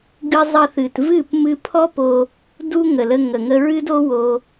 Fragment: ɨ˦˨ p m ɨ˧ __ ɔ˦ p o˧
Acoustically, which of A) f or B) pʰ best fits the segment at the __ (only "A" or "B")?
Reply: B